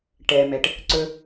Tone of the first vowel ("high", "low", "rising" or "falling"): low